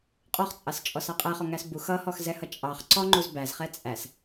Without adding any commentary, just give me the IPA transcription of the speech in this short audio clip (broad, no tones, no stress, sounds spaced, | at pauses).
qʼ ɔ χ t͡sʼ ɑ s t͡ʃʼ ɔ s ɑ qʼ æ χ ɔ ŋ æ s b u x ʌ h ɔ x z ɛ h ʌ t͡ʃʼ ɑ χ ǀ ɔ ŋ͡ǃ u z b æ z χ ɛ t͡sʼ æ s